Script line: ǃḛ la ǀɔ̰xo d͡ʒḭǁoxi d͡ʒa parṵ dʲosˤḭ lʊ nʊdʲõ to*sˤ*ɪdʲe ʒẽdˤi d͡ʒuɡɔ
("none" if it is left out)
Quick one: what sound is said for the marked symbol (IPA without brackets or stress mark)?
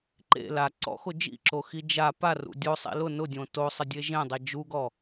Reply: sˤ